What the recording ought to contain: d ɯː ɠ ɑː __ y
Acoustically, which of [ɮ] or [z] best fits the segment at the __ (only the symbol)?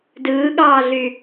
ɮ